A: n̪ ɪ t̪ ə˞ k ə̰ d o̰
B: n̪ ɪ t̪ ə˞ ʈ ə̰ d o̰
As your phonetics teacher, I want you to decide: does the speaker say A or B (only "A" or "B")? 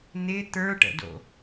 B